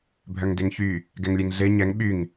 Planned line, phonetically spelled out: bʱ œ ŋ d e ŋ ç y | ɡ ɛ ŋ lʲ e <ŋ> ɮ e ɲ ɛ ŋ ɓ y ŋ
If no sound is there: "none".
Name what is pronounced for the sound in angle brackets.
ŋ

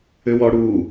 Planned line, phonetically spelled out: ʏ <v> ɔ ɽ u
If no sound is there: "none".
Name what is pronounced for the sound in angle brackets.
w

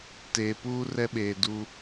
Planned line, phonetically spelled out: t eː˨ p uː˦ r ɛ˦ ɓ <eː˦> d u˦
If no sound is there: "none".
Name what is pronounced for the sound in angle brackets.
eː˨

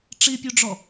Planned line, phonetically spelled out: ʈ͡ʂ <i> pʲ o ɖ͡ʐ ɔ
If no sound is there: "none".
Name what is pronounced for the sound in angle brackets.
i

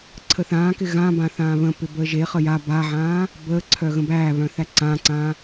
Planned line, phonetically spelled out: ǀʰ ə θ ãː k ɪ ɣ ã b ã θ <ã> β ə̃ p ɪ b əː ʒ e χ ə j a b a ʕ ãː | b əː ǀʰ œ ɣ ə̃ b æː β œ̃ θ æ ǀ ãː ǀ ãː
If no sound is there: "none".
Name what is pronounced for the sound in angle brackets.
ãː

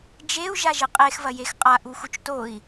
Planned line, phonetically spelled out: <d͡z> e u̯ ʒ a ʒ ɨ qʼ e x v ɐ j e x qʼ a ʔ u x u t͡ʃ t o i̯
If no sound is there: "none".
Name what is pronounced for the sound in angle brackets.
d͡ʒ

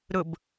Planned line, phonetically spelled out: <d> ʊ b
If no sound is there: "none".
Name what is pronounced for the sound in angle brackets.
ɾ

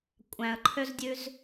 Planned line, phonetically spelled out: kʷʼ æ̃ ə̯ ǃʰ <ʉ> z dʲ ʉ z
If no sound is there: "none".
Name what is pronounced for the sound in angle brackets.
ø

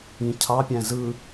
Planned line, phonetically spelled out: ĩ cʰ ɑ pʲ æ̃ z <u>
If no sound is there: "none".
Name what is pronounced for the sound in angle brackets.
ɯ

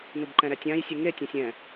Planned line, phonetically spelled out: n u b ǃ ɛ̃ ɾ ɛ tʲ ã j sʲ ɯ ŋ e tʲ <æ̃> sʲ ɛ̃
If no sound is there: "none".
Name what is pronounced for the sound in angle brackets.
ã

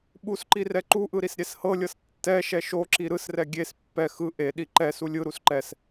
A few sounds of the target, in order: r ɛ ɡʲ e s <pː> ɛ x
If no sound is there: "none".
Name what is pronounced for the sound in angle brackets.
pː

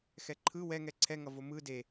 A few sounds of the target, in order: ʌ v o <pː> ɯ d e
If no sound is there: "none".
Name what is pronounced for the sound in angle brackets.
m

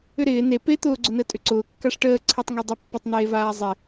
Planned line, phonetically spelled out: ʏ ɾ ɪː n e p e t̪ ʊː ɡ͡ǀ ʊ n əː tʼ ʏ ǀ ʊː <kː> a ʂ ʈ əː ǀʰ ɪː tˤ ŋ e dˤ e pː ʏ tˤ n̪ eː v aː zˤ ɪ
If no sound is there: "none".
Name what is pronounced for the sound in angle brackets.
kː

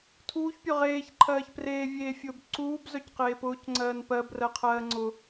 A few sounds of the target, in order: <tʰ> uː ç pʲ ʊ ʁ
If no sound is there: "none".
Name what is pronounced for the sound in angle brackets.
tʰ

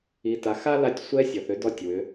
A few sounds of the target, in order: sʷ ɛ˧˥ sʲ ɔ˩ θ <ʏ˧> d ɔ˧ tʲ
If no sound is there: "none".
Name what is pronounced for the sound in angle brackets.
ʏ˧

